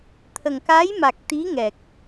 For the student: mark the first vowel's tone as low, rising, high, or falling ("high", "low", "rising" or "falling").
low